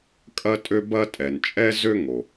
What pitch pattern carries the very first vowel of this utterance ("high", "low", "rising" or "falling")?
high